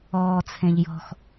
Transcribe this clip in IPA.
ɔː t͡sʰ ẽ ʎ j ɔ̤ x

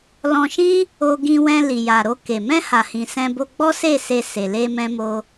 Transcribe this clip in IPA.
l ɔ̃˧ ʃ ĩ˦ | o˧ ɡ ĩ˧ w ɛ̃˧ l i˨ j a˨ ɾ o˧ k e˨ m ɛ̃˧ h a˨ h ĩ˨ s ɛ̃˧ b o˧ ɡ͡b ɔ˦ s e˦˨ s e˧ s e˧ l e˦ m ɛ̃˦ m o˦

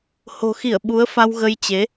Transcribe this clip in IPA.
h o̤˨˩ x i˧˩ ə̯ ɓ u˨˦ ə̯ f a˧ w ɣ ə˧ j t͡ɕ e˨˦

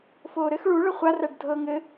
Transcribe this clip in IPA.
f oː ɾ ɘ x ɭ u ɭ ə χʷ a r æ ɖ dʱ ɤ ŋ ɘ

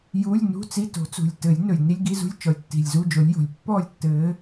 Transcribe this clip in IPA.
j uː˧˥˧ lʲ n ṳ˧˥˧ t͡s i˧˥˧ t o̤˨˦ t͡s ṳ˨˩ lʲ t ɘː˨˩˦ lʲ n ɵ˨˩ lʲ n i˧˥˧ lʲ ɡ i˧˥˧ z ṳ˧˥˧ lʲ t͡ʃ ɔ˨˦ lʲ tː i̤˨˩ lʲ z u˧˥˧ d͡ʒ o˨˦ lʲ j o̤˨˩ lʲ pː ɔː˥˨ lʲ tː ɘː˨˦

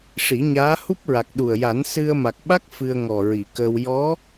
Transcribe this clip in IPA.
ʂ i˨˩˦ ɲ aː˧˥ h u˦˥ p̚ ɹ a˨˩ k̚ ɗ u˨˩ ə̯ j a˨˩˦ n s ɨ˧ ə̯ m a˨˩ k̚ ɓ a˦˥ k̚ f ɨ˧ ə̯ ŋ ɔ˨˩ ɹ i˨˩˨ k əː˧ w j ɔ˧˥

